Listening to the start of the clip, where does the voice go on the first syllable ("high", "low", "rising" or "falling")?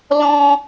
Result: high